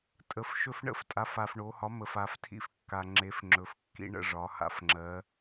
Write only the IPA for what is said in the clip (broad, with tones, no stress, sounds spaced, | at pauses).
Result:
tʼ ə˨˩ f ʃ ɵ˦ f ɳ ə̰˥˨ f tʼ a˩˥ f a˨˩ f ɳ o˩˧ h ɒ˩˥ m ə˨˩ f a˩˧ f tʰ ḭ˦ f kː a˨˩ ŋ͡ǁ e˩˥ f ŋ͡ǁ ɵ˩˧ f kː ḭ˦ ɳ ə̰˥˨ ʐ ɒ˩˧ h a̰˨˩ f ŋ͡ǁ ɜ˩˧